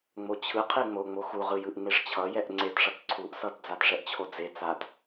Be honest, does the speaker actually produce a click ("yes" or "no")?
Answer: yes